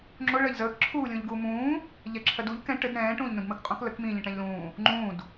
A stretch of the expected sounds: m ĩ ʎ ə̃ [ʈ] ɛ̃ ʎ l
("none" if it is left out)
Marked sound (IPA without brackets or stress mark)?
ʈ